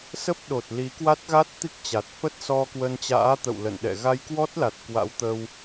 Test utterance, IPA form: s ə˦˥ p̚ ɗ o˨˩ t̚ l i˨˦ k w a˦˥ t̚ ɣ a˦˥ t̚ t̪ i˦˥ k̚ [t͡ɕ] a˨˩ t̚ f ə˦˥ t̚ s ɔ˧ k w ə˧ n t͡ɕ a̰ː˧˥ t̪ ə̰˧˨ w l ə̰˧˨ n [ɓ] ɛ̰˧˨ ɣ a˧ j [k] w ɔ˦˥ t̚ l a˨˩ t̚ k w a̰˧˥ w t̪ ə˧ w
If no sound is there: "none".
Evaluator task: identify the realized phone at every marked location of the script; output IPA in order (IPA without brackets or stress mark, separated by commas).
t͡ɕ, ɗ, k